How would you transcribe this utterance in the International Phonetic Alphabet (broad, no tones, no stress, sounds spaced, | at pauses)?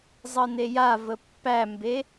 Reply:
zˤ ɤ n e j a v ə pː æ m b e